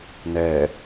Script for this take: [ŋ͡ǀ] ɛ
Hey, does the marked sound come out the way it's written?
no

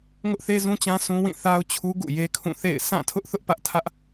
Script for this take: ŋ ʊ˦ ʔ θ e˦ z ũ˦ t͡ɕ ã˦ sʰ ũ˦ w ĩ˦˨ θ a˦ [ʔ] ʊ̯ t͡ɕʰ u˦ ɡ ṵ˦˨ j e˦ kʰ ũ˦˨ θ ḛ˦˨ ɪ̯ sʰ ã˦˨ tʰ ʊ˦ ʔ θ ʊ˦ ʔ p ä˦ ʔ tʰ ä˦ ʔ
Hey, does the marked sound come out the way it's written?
no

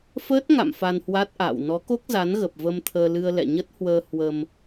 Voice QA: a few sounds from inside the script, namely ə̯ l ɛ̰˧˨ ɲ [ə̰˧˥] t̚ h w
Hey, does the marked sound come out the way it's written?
no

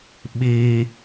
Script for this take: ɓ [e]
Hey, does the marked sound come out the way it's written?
no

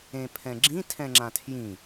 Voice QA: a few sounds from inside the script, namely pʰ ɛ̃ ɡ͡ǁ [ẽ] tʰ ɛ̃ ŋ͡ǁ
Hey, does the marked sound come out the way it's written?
no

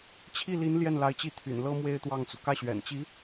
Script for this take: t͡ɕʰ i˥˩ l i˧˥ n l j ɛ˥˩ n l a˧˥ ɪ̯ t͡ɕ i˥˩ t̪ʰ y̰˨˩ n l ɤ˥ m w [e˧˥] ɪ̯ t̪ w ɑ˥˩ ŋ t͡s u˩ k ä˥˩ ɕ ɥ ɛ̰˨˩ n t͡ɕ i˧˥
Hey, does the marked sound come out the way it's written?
no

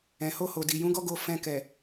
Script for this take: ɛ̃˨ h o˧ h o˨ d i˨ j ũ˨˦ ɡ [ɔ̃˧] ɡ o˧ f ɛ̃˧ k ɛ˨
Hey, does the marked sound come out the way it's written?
no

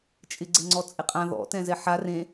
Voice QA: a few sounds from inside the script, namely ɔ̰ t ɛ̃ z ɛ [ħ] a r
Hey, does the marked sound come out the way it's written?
yes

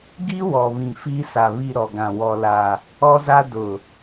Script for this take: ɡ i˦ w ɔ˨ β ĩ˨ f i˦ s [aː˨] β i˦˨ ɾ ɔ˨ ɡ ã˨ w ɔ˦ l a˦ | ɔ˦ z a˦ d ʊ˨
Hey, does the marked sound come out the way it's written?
no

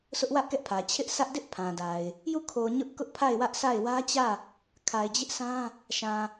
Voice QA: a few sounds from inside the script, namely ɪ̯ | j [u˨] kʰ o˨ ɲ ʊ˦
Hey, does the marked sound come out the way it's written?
no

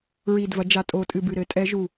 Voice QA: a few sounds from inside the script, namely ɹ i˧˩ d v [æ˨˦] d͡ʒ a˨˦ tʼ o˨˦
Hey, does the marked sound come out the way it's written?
no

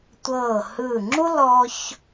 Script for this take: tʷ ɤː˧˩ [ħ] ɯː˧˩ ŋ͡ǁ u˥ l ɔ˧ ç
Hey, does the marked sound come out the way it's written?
no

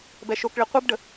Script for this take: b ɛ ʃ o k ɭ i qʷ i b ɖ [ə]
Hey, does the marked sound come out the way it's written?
yes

